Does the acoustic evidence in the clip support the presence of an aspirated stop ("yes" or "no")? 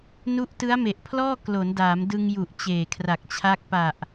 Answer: yes